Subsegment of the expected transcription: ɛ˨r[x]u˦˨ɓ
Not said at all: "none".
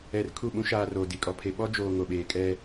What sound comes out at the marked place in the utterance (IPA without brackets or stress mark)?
kʰ